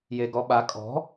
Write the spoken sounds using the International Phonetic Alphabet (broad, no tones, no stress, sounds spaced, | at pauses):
j e ɡ ɔ ɓ a kʼ ɔ̤